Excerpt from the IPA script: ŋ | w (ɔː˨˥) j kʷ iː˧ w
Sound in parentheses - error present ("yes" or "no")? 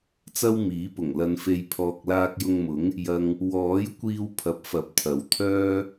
no